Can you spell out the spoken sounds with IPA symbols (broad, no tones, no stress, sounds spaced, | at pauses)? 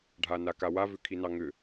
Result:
ɖʱ a n a k a w a v ʏ kʰ i n ɑ ŋ ʏ